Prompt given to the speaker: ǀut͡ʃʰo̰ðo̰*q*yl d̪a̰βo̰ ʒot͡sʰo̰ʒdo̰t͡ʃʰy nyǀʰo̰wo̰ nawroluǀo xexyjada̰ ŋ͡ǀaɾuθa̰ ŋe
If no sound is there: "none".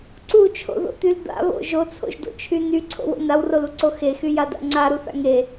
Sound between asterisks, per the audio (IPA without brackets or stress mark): t̪